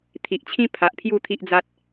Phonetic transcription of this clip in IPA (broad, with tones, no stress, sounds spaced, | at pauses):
t̪ʰ i˨ ʔ t͡ɕʰ ĩ˦ pʰ a˨ ʔ pʰ j u˥˧ t̪ʰ i˦ ʔ d͡z a˦ t̚